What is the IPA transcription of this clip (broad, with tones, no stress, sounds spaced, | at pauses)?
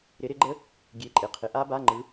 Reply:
ɾ ɪ˨˥ ɾ ɪ˨˥ ɡ͡ǃ ə˦˥ | ɡʲ e˧˥˧ ǃʼ ɪ˧˩˧ qʰ ɪ˨˥ ʔ a˦˥ b a˧˥˧ ŋ͡ǃ ɯ˨˥